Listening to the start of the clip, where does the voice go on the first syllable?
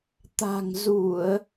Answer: low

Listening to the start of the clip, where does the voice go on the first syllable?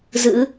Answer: rising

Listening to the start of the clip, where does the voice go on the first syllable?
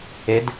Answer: rising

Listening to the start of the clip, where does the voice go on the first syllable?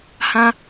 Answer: high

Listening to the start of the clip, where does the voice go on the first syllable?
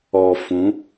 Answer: low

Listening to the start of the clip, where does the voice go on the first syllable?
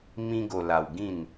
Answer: high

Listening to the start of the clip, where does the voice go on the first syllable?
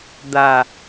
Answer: low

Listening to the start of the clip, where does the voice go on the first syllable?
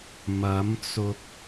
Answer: rising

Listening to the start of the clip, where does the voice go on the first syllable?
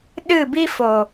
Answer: falling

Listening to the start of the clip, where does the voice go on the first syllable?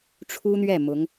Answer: high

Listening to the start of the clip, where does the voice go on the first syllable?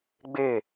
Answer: falling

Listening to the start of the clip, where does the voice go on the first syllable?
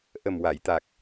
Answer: low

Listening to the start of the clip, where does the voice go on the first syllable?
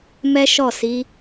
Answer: high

